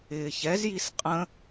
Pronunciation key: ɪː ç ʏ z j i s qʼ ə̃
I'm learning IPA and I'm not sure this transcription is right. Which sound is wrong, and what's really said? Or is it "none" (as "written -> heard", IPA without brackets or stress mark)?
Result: ʏ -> ɛ